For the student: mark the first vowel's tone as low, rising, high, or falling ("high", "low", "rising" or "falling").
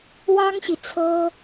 high